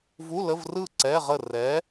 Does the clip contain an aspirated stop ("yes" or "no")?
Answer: no